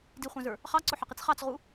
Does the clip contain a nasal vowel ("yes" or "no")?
yes